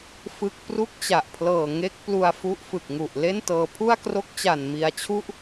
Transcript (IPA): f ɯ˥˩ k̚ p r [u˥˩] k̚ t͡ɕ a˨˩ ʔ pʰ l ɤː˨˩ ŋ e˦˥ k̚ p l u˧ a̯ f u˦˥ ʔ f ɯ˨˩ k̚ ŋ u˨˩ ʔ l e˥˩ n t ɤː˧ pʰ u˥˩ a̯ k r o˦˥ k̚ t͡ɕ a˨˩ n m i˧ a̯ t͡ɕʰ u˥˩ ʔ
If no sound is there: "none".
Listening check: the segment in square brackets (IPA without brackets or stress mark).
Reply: u˥˩